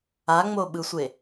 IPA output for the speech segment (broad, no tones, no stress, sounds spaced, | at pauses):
a ŋ͡m o ɓ ɯ sʷ e